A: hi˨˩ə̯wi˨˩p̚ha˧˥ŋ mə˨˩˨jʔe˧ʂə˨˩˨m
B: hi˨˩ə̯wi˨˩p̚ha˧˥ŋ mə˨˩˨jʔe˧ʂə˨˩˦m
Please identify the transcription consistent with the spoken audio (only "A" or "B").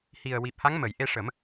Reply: B